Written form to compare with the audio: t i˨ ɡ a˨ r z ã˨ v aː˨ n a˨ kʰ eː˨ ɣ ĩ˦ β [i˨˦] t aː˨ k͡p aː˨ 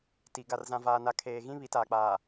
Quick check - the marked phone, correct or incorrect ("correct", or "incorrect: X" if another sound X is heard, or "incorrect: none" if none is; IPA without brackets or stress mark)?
correct